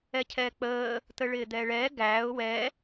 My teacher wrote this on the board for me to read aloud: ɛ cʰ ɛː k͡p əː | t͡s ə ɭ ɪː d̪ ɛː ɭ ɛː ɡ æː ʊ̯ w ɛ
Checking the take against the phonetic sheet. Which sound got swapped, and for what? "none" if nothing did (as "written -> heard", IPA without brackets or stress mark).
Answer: t͡s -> t̪